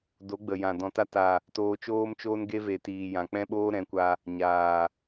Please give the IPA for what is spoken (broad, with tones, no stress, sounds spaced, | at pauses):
d o˨˦ ɡ͡b ə˨ j ã˨ d ɔ̃˨ t a˧ t a˨ | t oː˧ t͡ʃ oː˦ m t͡ʃ oː˦ n ɡ e˦ v e˨ t iː˨ j ã˨ k͡p ɛ̃˦ ɓ oː˦ ɾ ɛ̃˨˦ kʷ a˧ | ɲ aː˨